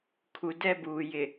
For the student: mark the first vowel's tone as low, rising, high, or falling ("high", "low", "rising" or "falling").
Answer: low